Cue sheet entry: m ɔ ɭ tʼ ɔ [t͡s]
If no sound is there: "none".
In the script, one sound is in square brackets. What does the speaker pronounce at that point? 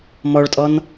n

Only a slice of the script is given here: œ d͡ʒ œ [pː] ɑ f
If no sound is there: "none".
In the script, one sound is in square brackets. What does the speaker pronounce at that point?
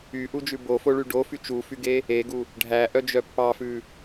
pː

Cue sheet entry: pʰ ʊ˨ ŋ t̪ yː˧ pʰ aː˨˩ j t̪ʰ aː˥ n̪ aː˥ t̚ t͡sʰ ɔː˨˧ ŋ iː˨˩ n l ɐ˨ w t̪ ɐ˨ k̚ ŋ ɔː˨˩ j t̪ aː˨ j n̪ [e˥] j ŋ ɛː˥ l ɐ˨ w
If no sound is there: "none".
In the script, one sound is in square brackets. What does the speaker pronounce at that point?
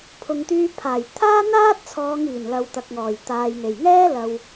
e˨˩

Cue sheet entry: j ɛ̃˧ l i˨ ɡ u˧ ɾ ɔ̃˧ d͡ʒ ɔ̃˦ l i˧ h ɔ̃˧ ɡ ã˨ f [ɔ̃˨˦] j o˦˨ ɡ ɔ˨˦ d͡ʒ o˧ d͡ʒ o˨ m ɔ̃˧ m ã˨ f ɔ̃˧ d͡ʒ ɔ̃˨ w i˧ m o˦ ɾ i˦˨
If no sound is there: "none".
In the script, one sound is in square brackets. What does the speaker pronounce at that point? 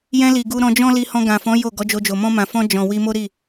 ɔ̃˨˦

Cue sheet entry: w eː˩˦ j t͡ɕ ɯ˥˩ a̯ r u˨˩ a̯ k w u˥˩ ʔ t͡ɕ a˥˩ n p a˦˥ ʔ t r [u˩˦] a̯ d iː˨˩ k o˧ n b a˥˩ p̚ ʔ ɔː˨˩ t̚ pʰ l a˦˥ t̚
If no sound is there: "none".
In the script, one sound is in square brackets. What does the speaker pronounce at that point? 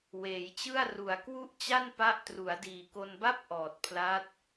u˩˦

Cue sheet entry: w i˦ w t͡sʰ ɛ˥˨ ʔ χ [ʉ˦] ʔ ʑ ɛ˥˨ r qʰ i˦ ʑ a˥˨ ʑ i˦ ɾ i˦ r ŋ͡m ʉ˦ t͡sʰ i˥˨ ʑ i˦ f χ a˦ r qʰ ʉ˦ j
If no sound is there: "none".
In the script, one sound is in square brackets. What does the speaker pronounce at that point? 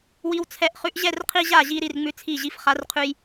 ʉ˦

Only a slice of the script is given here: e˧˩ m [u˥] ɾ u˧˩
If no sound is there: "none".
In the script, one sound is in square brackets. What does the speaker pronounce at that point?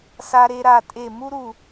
u˥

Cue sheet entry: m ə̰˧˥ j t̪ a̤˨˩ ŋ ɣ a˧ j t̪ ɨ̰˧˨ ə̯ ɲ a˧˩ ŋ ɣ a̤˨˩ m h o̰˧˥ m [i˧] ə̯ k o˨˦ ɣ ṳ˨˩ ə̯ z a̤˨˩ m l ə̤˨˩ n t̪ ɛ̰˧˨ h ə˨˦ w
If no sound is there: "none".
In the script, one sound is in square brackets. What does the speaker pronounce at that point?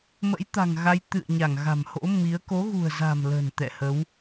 i˨˦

